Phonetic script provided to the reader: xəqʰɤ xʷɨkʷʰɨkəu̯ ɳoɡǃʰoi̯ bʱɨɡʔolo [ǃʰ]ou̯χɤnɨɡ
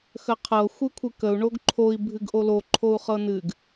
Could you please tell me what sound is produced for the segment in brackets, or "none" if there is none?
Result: ǃʰ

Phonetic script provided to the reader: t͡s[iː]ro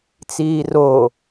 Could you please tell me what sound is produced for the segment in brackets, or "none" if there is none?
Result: iː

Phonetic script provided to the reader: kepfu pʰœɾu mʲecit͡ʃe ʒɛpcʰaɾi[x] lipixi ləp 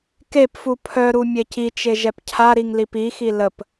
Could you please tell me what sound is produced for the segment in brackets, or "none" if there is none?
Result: ŋ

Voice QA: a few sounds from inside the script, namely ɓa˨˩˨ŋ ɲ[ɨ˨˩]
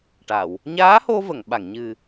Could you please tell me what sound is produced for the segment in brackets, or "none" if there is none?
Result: ɨ˨˩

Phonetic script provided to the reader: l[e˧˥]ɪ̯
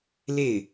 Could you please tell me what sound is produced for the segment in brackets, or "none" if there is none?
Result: e˥˩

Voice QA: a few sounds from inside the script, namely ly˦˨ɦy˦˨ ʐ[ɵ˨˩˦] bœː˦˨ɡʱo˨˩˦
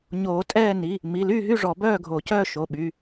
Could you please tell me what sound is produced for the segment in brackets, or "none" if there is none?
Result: ɔ˨˩˦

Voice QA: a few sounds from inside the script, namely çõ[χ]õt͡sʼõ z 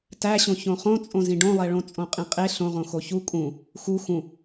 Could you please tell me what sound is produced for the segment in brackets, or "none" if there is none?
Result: χ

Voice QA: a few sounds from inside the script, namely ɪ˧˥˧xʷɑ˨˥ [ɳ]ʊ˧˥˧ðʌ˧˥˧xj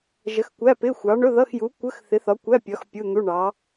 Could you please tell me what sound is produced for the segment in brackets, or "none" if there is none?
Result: ɳ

